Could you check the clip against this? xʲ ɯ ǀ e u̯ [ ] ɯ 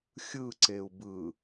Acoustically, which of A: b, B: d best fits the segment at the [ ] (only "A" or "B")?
A